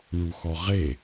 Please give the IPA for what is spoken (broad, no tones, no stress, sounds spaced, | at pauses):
ɳ u x ɔ ʁ e